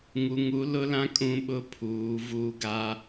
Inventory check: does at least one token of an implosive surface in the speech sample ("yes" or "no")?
yes